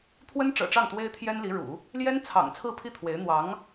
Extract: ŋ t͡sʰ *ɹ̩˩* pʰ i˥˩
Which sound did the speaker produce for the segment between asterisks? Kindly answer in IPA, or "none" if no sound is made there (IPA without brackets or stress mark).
ɹ̩˥˧